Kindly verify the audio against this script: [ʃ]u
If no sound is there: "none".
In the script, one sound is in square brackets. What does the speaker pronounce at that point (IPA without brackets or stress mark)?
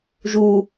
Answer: ʒ